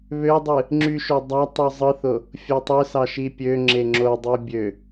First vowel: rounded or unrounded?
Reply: rounded